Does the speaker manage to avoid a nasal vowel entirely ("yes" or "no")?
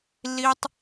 yes